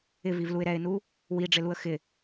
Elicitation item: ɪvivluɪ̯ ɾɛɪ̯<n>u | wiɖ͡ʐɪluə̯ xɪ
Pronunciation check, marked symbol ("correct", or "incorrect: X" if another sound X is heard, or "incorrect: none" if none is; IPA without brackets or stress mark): correct